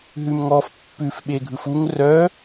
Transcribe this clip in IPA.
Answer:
ɦ ʉ m ŋ ɔ f pː ʉ f ɓ e ɡʱ ɯ f u ŋ r œ

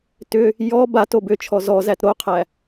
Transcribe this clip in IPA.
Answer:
t ʏ | j ɔ b a t o b ʏ t͡ʃʰ ɔ z ɔ z æ t ɾ o qʰ æ

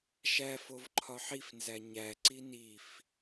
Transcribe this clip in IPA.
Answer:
ʃ æ f o v ǃʰ ɒ ħ i f n z æ ɲ æ ǀ i n i f

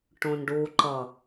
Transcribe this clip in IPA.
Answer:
ʈ õ n ɖ u ǃ ʌ

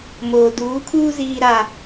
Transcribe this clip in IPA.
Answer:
m oː˨ d uː˨˦ kʰ uː˦ z iː˦ ɾ aː˦

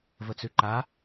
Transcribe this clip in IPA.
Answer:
v ə t͡s ʉ ǃ a

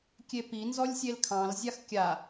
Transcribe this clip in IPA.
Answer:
kʲ e p i n z ɔ lʲ sʲ e l kʰ ɑ̃ l zʲ a x kʲ a

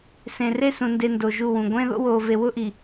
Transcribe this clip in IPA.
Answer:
s ẽ˨ r e˦ s ũ˨ n d e˨ n d o˨ ʒ u˦˨ w ũ˨ ɡʷ ẽ˦ ð o̰˦ w oː˨ v e˨ w ʊ˦ ʔ i˨

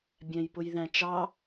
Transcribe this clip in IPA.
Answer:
bʲ æ̃ j p ʊ j ð æ̃ t͡ʃ ɑ

